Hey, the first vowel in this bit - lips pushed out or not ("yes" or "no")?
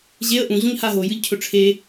no